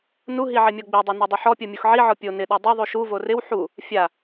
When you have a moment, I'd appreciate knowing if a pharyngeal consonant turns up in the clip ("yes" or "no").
yes